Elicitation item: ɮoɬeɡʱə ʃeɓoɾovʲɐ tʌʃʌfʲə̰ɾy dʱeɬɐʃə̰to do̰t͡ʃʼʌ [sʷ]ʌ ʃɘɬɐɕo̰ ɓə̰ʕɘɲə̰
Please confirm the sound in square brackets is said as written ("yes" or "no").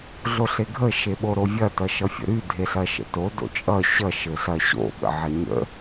no